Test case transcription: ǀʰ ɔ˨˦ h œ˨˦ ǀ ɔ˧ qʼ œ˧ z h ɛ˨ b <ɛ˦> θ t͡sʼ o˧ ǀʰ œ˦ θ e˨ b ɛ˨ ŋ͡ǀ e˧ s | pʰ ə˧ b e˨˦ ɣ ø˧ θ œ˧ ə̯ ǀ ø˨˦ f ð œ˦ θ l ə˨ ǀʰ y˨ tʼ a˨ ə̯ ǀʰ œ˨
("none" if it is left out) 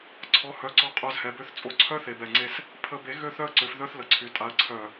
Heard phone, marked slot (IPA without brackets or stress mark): ø˦